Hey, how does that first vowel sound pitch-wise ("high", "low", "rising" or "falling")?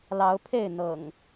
rising